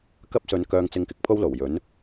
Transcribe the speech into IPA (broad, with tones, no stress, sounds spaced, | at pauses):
k ɐ˥ p̚ s ɵ˨˧ n k œː˧ ŋ t͡s ɪ˧ ŋ k ɪ˨ k̚ pʰ o˥ w l o˨˩ w j ɵ˨˥ n